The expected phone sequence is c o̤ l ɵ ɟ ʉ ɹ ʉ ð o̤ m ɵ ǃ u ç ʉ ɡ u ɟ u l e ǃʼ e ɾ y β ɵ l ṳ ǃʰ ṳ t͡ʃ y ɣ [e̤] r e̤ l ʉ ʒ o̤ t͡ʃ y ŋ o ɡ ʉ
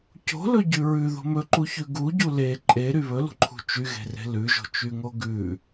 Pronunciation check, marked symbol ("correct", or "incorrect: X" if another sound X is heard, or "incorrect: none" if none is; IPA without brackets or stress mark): correct